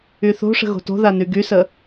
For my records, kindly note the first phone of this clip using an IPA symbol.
y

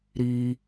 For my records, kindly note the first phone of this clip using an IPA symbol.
ɾ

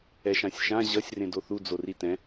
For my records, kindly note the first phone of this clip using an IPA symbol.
ɛ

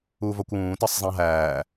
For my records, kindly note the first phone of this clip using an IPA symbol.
uː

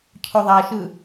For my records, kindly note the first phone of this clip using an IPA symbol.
cʰ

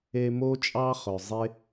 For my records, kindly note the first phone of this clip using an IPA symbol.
e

